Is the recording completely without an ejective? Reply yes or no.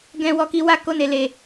yes